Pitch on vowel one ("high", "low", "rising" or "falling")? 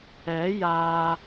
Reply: rising